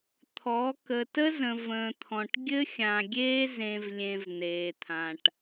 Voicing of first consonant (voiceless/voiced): voiceless